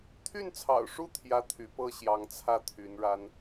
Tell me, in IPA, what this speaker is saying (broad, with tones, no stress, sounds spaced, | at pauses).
t̪ʰ y˥˩ n t͡sʰ ɑ̰˨˩ ʊ̯ ʂ u˥˩ t̪ʰ j ä˥ t̪ʰ y˧˥ p ɤ˥ ɕ j ɑ˧˥ ŋ t͡sʰ ä˥˩ t̪ʰ y˧˥ n ɻ a˥ n